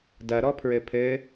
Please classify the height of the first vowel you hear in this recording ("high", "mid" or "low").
low